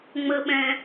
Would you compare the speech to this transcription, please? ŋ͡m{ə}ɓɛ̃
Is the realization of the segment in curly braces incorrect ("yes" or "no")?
no